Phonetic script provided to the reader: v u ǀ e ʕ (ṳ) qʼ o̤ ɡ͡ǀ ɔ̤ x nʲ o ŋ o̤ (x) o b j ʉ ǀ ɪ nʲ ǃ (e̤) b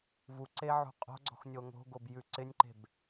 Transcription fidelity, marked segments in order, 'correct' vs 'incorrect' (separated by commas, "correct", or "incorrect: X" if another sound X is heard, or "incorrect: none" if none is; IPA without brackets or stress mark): correct, incorrect: ɡ, correct